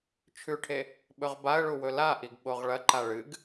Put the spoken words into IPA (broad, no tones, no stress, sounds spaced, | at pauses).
t͡ʃʰ ʉ ʈʰ e | ɓ ɵ ʁ b a ə̯ ɭ u w ɵ l a ʔ i ɡ ɓ o ʁ ɭ ɐ ǃ a ɭ ɨ ɡ